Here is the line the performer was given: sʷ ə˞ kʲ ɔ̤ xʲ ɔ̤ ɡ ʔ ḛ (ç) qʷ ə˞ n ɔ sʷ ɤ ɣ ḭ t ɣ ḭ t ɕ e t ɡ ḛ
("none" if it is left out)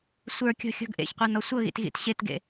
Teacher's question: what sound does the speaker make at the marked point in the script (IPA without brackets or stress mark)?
ç